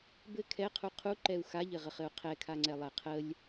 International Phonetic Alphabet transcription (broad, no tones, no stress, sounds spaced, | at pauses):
b ɘ kʰ ɛ qʰ u qʰ u ǃ ɛ u̯ x a ʎ ɘ ʁ ə χ ɘ u̯ qʰ ɛ kʰ a ŋ͡ǀ ɛ lˠ ɛ qʰ ə lʲ